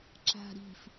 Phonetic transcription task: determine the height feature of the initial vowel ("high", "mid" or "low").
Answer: low